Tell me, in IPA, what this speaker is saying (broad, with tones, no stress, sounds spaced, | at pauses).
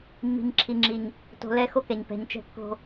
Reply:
mː i̤˨ ɲ ǁʰ i˨ ŋ͡ǁ i˨ ɲ | t o̤˨ l ɛ˦˨ x o˦ k ɛ˨ ɲ p ɛ̤˨ ɲ t͡ʃ ɛ̤˦ kː o̤˦